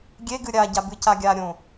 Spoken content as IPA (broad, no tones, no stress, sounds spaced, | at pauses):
ɡʲ e ɡ ɨ ɾʲ a ɟ a b ɨ c a ɡʲ a ɾʲ õ